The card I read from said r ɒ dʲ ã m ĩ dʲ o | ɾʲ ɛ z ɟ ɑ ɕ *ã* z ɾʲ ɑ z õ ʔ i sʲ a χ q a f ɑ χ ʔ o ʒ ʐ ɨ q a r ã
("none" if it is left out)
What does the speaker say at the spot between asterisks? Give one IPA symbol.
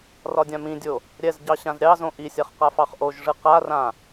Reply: ã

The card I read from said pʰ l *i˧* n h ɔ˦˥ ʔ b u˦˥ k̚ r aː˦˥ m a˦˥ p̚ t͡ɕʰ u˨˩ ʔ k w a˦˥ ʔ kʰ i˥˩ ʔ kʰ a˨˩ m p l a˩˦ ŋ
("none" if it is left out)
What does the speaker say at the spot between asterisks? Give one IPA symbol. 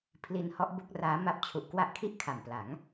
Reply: i˧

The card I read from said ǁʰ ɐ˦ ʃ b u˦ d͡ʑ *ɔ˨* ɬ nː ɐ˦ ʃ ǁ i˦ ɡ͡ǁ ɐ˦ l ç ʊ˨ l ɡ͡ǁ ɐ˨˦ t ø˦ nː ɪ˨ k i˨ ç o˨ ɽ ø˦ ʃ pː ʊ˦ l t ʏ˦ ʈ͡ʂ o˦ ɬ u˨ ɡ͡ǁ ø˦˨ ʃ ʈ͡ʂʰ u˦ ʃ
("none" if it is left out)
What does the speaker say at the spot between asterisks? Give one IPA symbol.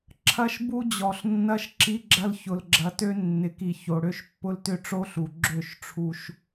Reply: ɔ˨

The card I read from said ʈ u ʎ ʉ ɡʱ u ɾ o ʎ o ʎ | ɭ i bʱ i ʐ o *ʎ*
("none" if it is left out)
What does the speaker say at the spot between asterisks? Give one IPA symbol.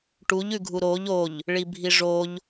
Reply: ʎ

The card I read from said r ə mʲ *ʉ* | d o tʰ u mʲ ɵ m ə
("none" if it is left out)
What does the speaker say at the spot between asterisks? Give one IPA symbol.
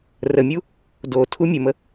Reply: u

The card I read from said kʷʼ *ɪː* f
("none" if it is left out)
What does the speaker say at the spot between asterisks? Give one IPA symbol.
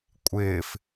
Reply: ɪː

